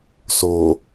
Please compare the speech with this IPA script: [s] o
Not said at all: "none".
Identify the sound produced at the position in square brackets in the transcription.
s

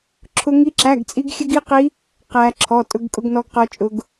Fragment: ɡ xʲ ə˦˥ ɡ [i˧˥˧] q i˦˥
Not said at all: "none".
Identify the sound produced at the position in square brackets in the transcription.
i˧˥˧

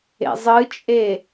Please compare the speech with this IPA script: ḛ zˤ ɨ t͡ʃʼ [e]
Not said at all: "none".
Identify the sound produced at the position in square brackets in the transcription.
e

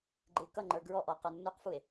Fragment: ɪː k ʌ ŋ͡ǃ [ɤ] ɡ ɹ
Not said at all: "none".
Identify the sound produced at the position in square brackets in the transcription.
ə˞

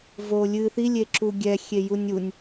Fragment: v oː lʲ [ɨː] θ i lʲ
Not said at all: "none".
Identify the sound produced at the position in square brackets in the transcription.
ɨː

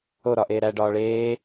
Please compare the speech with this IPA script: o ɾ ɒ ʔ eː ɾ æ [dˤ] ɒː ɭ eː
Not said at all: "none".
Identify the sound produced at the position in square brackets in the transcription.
ɖ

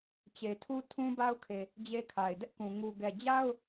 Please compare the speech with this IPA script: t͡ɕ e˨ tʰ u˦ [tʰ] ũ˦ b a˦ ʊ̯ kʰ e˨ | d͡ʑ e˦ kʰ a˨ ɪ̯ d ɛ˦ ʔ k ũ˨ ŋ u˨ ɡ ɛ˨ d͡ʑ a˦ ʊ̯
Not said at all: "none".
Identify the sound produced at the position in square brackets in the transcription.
tʰ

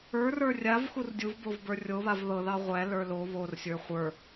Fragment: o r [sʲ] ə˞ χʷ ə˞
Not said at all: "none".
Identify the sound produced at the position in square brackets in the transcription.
sʲ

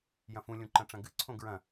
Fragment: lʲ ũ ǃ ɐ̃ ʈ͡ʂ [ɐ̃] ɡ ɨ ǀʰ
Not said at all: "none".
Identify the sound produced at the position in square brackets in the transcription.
ɐ̃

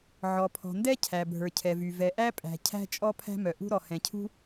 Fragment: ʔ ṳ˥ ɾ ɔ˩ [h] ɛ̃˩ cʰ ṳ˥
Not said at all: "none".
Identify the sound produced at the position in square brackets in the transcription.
h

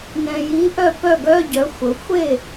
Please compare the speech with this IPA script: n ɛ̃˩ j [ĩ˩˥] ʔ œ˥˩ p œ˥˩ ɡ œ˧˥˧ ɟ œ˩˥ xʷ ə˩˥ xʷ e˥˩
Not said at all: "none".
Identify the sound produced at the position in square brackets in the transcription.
i˩˥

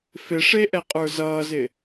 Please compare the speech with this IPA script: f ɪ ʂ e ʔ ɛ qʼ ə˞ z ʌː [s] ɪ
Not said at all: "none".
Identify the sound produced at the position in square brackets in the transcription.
z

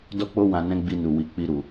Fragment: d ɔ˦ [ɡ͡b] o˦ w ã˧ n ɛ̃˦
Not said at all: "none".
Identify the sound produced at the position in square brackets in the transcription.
k͡p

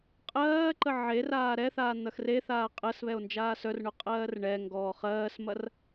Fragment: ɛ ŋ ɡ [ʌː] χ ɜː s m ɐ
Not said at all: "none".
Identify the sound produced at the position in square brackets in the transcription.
ɔː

